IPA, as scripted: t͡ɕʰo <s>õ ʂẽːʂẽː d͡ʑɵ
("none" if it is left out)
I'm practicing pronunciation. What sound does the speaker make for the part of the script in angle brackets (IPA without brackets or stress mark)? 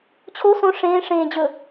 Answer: s